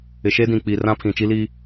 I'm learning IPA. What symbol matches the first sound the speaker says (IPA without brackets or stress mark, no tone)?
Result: ɪ